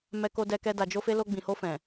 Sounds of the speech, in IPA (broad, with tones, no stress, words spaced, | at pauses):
mɛ˧ko˧dɛ˧kɛ˧ da˨d͡ʒo˧fe˧ lo˧ɡ͡bĩ˨ho˧ fɛ̃˨